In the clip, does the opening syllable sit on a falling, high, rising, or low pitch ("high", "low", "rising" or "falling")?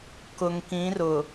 low